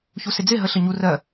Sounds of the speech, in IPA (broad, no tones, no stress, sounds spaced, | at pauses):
ç u s ɪ d͡z ɪ ɦ ə ɬ ə ɲ u r ɜ